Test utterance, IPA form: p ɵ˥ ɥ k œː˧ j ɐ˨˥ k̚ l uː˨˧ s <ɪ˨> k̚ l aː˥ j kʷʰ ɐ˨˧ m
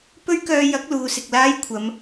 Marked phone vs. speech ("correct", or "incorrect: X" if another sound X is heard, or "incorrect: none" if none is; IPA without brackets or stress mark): correct